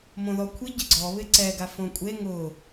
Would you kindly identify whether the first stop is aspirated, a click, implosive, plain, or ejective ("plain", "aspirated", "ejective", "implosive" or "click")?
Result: aspirated